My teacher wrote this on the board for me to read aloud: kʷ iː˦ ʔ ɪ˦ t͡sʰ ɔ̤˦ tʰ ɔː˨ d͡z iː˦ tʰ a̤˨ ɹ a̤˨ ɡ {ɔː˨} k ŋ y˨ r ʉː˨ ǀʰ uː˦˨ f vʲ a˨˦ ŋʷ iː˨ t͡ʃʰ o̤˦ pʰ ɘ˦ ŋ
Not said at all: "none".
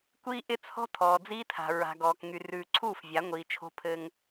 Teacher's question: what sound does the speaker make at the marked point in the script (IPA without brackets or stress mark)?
ɔː˨